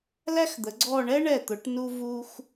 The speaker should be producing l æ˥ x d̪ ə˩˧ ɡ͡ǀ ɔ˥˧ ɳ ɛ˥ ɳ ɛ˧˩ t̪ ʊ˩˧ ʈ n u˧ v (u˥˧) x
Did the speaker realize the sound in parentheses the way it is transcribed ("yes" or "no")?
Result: no